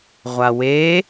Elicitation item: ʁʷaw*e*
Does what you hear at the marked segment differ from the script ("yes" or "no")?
no